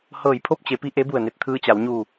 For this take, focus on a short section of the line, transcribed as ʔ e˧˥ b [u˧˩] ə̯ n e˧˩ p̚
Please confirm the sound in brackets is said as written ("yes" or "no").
yes